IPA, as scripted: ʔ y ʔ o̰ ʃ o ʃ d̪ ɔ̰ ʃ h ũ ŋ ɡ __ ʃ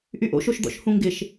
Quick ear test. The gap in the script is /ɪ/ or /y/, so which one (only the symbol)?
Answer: ɪ